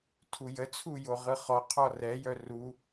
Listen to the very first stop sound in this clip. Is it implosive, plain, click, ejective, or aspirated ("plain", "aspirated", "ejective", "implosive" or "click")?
aspirated